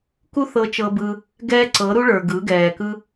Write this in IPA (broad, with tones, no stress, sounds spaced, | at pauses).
k u˦ θ ɤ˧ t͡ʃ ɤ˧ b ɯ˧ | ɡ ɛː˦ ǀ ɤ˨˦ ɾ u˦ ɭ ə˞˨ ɡ ɯ˨˦ ɡ ɛː˨ k ɯ˦